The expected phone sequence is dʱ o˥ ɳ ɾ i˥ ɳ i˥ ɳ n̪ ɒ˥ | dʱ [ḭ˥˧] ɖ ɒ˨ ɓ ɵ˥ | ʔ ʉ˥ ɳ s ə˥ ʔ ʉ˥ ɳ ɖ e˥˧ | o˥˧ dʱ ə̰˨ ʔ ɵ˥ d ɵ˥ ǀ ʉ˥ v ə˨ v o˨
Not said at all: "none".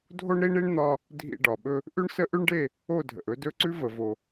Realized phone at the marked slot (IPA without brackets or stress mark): ḭ˥˧